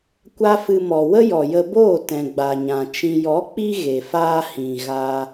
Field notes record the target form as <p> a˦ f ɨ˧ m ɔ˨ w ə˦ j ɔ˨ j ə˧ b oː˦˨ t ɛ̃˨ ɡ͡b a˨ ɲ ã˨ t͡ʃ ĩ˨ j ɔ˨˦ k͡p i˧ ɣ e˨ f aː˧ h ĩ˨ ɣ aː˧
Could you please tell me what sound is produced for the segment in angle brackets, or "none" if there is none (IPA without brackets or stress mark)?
kʷ